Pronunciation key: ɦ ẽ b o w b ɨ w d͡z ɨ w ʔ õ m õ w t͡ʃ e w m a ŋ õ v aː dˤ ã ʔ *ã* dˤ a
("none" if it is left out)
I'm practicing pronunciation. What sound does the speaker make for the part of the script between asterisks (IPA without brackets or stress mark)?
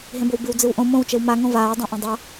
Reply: ɐ̃